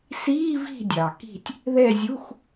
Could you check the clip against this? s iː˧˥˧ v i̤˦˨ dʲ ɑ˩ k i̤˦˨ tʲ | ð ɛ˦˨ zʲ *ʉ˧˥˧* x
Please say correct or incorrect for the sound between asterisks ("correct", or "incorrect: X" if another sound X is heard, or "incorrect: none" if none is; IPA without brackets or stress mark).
incorrect: u˧˥˧